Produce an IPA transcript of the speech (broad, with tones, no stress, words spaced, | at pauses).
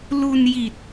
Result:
lu˧n ji˨˩t̚